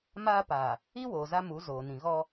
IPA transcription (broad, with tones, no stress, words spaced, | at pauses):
maː˦paː˨ | i˦ woː˨za˦mu˨˦ zoː˨nĩ˨ ɣɔ˦